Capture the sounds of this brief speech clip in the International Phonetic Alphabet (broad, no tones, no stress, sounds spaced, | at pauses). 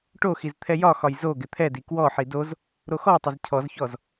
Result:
ʈ o x i z t̪ʰ ɛ j ɒ x ɒ j z o ɡ ɪ t̪ʰ ɛ d i k w ɔ ħ i d o z | ɾ o x ɔ tˤ ɪ z cʰ ɔ z ç ɔ z